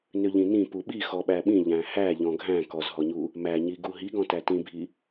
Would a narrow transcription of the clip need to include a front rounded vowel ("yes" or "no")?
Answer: yes